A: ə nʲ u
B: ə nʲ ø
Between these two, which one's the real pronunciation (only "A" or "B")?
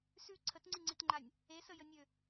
B